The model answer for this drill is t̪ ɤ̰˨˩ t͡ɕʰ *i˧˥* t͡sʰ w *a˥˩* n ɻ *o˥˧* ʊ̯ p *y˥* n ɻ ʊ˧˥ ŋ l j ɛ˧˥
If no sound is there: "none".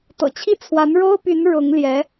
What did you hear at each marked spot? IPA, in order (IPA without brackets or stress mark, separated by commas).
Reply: i˥˩, a˧˥, o˥, y˧˥